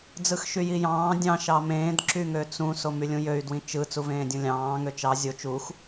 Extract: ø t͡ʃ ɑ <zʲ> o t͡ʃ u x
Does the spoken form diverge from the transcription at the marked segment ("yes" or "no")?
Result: no